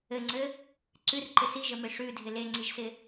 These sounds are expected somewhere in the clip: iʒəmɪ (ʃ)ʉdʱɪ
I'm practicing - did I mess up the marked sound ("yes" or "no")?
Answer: yes